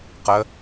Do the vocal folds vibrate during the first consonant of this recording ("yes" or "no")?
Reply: no